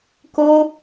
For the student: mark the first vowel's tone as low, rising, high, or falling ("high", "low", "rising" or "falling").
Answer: high